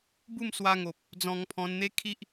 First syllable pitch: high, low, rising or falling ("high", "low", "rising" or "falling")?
falling